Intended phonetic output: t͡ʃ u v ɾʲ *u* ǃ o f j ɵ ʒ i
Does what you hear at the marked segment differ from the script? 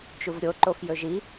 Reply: yes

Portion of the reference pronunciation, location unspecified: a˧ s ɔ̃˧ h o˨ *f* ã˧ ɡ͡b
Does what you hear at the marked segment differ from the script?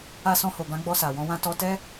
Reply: yes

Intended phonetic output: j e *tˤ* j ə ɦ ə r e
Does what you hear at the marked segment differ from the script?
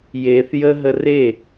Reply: yes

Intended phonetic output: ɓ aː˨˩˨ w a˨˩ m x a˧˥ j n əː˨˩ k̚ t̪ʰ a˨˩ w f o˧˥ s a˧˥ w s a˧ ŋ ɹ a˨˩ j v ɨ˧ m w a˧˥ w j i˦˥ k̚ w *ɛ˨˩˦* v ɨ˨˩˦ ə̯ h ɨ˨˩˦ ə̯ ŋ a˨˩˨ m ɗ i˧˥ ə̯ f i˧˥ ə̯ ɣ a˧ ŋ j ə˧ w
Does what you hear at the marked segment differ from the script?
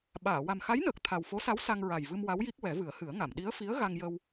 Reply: no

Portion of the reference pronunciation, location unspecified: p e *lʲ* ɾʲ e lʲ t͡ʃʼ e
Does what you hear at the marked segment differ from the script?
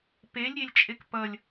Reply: no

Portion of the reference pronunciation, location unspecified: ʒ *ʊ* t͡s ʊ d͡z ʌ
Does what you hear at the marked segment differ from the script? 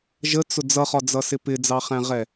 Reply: yes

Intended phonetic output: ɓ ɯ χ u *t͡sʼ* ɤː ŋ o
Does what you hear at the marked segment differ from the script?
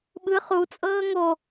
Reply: no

